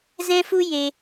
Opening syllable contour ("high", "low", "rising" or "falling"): high